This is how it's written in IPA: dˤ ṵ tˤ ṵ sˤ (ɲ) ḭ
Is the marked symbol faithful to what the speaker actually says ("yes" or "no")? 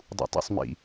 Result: no